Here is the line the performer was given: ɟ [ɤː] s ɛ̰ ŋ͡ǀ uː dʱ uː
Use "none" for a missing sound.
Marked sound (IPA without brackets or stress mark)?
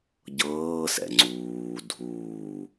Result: ɤː